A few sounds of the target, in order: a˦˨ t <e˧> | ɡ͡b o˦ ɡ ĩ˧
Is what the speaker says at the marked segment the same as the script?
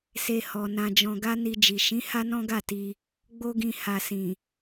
no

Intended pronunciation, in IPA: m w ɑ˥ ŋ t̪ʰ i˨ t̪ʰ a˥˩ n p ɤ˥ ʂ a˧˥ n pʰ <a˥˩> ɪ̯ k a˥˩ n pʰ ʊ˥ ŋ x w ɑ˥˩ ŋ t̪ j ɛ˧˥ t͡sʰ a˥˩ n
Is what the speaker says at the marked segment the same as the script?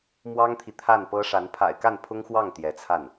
no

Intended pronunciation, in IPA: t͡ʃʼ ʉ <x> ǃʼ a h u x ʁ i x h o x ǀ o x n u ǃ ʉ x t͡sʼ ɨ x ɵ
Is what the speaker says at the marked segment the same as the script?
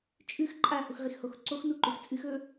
yes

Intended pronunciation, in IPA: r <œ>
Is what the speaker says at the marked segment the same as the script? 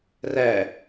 no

